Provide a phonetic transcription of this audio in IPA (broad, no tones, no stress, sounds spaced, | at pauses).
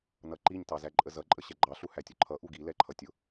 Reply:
n ʌ ǃ i ɲ t ɑ z æ ǃʼ ə z ʌ ǃʼ ə ɕ ɛ ɡ͡ǃ ɑ ɬ u h æ tʲ ʊ ǃʰ ʌ ʔ u ɡ i l ɛ ǃʰ ʌ tʲ ʊ